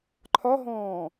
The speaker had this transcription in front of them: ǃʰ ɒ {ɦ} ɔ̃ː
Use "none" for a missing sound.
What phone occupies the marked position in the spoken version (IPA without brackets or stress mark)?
ɦ